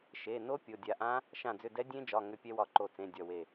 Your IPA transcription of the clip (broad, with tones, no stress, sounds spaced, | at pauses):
ʃ e˩˧˩ n o˦˥ pʲ o˩˧˩ dʲ a˧˩ ʔ ã˦˥ | ʃ ã˧˩ d͡z ʏ˧˩ d ɛ˦˥ dʲ ẽ˦˥ d͡ʒ ɒ˩˧˩ ŋ ʏ˦˥ pʲ ɛ˦˥ w ɒ˧˩ ǃ o˧˩ t͡s ẽ˩˧˩ dʲ ɒ˧˩ w e˧˩